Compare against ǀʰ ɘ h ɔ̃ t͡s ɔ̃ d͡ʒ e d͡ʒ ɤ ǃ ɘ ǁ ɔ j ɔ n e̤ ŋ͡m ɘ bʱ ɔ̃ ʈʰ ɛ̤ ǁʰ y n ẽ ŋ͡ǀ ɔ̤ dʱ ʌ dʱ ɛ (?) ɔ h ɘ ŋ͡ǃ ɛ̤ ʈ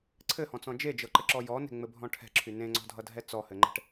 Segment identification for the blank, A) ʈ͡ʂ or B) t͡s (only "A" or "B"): B